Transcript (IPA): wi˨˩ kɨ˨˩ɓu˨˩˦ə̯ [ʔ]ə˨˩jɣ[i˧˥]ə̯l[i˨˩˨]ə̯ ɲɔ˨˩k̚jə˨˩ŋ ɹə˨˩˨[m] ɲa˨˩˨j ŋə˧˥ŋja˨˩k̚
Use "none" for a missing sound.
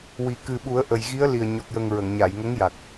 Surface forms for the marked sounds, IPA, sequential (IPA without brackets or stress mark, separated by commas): ʔ, i˧˥, i˨˩, ŋ